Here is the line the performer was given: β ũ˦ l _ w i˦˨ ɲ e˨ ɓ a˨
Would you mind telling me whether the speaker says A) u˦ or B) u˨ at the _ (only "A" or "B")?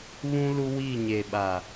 A